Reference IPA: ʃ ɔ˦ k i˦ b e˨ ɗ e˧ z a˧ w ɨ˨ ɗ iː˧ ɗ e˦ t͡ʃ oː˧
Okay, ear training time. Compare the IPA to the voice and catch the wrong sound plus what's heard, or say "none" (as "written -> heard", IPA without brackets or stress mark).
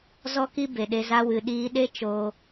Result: ʃ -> z